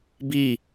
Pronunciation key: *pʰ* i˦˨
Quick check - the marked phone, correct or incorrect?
incorrect